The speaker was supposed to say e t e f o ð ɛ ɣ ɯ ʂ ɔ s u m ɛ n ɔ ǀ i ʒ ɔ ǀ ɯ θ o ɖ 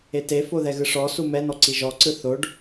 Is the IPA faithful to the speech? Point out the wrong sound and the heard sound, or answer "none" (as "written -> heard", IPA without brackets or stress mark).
none